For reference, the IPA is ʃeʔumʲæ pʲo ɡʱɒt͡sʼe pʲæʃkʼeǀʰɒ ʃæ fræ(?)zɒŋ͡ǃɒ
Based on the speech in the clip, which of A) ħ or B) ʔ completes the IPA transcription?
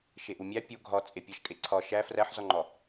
A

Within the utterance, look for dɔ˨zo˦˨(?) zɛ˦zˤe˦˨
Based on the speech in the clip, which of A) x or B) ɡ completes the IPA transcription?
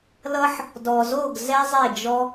B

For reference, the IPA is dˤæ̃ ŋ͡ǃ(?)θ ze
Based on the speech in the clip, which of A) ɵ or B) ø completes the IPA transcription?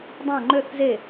B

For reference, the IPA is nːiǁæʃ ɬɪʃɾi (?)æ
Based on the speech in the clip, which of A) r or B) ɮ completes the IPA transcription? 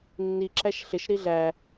B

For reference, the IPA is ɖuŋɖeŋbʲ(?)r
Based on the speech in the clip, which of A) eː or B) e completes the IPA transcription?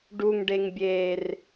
A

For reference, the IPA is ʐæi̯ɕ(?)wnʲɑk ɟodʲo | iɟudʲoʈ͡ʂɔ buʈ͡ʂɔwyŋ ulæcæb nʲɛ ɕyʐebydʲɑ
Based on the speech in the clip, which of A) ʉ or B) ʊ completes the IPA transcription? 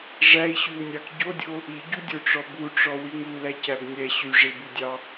A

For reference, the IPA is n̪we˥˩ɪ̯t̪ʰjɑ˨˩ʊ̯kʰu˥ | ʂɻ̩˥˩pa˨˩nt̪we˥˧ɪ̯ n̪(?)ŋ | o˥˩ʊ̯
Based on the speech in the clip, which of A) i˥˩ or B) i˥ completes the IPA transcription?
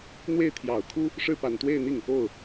A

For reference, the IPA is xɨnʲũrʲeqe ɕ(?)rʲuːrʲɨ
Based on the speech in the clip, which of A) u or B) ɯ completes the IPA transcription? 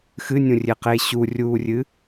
A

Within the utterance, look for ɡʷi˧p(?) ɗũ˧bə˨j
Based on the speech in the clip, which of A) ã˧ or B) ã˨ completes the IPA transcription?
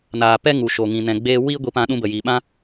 A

